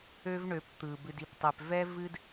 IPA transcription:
ø˦vɳø˨˦p t̪ɯ˨ bɨ˨di˨ptˤɛ˨pvɛ˦ vɨ˦d

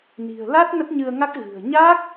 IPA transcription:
ni̤˨˩ə̯la˦˥t̚ nə˦˥t̚ɲɨ˧ə̯ŋa˦˥k̚ ɣɨ̤˨˩ə̯ ɲa˦˥k̚

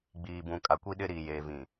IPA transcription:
ɡ͡biː˨bũ˨ kʼa˨kʷi˦ɗɪ˦ɾiː˨ jeː˨vĩ˨

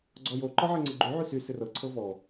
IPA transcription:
ɡ͡ǀɔjo ǃɔʕɛŋ͡ǀɪɡ͡ǃy ʕysy sɪrɤ ǀʰɤvɔ

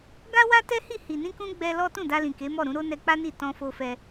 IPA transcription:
ɡa˦wa˦tɛ˦hi˦˨ hi˨nĩ˧kũ˧ ɡ͡bɛ˧ lɔ˦ tũ˦˨da˧lĩ˨ ke˨˦mɔ˦˨ɾũ˨˦ɾo˦ nɛ˧k͡pa˦ni˦˨ tɔ̃˧fo˧fɛ˧

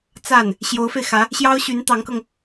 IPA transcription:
t͡sa˥˩n | ɕjo˧˥ʊ̯fe˧ɪ̯xä˧˥ | ɕjɑ˥ʊ̯ɕy˧˥nt̪ɑ˧˥ŋkɤ˧ŋ

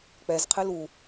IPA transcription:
k͡pɛzqʰɨ lu

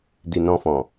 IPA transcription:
di˨nɔ̃˧fɔ̃˨

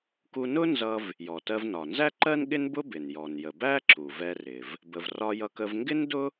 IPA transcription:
ku˧nʊ˥nzʌ˧v | jɔ˩tɜ˧v nɒ˩nzæ˥ǃɜ˥n ɠɪ˥nbʊ˥bɪ˩n jɔ˩njə˩bæ˥ ǁu˩vɛ˧rɪ˩v | bə˩vrɒ˧jʌ˧kə˧v ŋɡɪ˥ndʊ˥

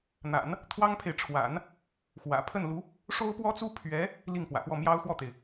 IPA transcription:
n̪a̰˨˩˦n | t̪ʰwɑ˥ŋpʰe˨ɪ̯ʈ͡ʂʰwa̰˨˩˦n | xwä̰˨˩ pʰə˥˩nlu˧˥ | ʂo˥ʊ̯pwɔ˥t͡su˥ pʰɥɛ˧˥ | li˥˩ŋpwä̰˨˩pwɔ˥˩ mjɑ˥ʊ̯xwɔ˥˩t̪e˩ɪ̯

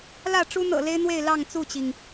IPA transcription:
lä˥˨ ʈ͡ʂu˦n̪ɤ̰˨˩le˦ɪ̯n̪we˥˨ɪ̯ lɑ˥˨ŋt͡su˥˨t͡ɕi˩ŋ

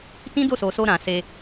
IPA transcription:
tĩ˦do˦˨so˨so˧ ɾã˨se˧

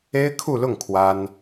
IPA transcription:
e˥ɪ̯kʰu˥˧lʊ˥˩ŋ kʰwa˥n

